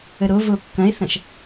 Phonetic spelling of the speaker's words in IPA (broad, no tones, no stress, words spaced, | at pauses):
əɾovo kːɐ̃e̯θɐ̃ʃ